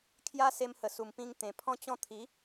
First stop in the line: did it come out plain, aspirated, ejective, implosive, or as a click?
aspirated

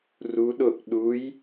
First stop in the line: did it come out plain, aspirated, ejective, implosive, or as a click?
implosive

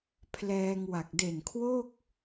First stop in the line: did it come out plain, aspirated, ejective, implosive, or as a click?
aspirated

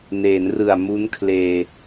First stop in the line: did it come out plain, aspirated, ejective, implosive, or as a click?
aspirated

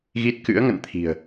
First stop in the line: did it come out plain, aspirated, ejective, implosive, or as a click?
plain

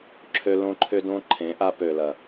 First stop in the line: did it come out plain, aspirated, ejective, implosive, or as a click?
click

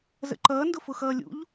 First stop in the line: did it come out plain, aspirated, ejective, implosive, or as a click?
click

